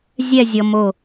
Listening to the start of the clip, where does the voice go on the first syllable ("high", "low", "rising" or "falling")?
falling